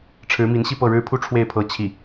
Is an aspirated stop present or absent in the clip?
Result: present